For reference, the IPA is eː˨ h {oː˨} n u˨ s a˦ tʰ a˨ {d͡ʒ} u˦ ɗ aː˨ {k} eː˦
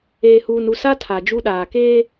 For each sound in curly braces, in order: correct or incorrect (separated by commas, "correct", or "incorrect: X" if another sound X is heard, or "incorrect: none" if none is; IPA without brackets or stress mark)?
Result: incorrect: uː˨, correct, correct